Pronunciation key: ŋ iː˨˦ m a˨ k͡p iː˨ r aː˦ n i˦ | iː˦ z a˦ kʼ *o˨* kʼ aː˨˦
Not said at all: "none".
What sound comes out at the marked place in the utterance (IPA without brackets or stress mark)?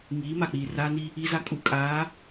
u˨